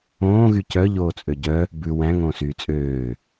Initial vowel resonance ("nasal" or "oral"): nasal